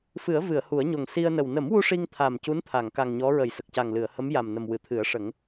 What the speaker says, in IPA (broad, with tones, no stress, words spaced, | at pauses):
fɨ˨˩˦ə̯ vɨ˨˩˨ə̯ hu˨˩˦ə̯ɲo˨˩ŋ si˧ə̯nə˨˩w nə˨˩˦mwu˧ ʂi˧ŋt̪ʰa˨˩m cu˧˥nt̪ʰa˨˩˨ŋka˨˩ŋ ɲɔ˧˥ɹə˨˩˨j sə˨˩k̚ca˨˩ŋlɨ˨˩˨ə̯ hə˧˥mja˨˩mnə˨˩m wɨ˨˩˨t̪ʰɨ˨˩˦ə̯ʂə˨˩˦ŋ